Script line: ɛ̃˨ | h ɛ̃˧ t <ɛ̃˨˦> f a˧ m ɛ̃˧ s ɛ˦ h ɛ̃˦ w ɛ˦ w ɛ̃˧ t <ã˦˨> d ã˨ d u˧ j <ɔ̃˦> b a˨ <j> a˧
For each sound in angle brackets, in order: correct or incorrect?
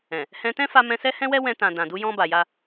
incorrect: ɛ̃˦, incorrect: ã˨, incorrect: ɔ̃˧, correct

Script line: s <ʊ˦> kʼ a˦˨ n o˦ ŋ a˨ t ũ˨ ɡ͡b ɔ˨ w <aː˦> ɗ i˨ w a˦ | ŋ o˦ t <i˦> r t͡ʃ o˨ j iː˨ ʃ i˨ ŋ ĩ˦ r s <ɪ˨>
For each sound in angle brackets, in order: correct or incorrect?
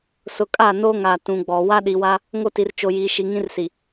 incorrect: ʊ˨, incorrect: a˦, incorrect: i˨, incorrect: i˨

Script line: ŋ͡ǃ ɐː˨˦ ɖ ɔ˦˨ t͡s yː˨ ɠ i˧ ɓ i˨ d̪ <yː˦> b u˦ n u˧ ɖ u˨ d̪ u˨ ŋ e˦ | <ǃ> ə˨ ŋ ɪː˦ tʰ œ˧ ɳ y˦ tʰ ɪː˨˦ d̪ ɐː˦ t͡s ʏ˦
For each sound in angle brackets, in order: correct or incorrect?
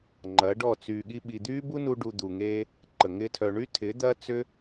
correct, correct

